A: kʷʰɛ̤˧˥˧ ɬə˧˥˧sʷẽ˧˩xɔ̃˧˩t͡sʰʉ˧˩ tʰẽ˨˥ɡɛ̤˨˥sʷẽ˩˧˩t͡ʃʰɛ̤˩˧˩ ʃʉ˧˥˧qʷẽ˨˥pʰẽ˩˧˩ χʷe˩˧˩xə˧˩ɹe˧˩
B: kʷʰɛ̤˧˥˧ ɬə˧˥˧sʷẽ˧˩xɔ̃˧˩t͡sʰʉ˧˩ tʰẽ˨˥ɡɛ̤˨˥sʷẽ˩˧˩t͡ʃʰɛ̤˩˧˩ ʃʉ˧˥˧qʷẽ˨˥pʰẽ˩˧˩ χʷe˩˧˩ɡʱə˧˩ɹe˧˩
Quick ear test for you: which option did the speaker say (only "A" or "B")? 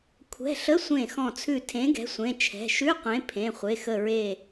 A